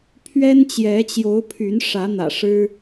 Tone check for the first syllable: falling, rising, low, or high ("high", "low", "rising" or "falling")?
high